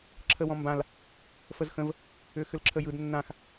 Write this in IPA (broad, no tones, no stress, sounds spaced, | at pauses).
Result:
ǁʰ ə w ɔ̃ m b ã l | f ə z x ə̃ v | ʏː x ʏ l ǁʰ ə j ɯ d nː ã x